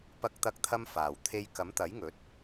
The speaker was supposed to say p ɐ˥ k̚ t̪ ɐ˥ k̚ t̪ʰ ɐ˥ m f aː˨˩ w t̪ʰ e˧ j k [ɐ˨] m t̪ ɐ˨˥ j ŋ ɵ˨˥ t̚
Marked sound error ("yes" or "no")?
yes